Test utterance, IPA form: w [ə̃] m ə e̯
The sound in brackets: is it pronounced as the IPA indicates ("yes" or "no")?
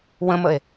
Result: yes